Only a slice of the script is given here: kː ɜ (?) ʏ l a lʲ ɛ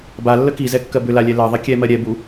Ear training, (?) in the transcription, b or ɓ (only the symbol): b